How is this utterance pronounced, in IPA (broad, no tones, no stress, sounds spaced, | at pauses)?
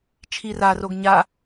t͡ʃʰ i r a r o ɡ ɲ a